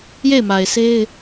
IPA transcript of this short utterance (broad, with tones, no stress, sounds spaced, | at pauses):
j e˦˨ ɪ̯ m a˨ ɪ̯ s e˦ ɪ̯